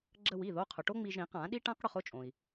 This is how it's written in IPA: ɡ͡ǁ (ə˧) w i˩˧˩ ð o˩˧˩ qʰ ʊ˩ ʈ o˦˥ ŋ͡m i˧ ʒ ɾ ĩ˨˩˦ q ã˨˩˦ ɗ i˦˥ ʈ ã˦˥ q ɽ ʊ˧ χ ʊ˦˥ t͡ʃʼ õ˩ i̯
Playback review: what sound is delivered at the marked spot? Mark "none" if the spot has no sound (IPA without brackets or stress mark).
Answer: ə˧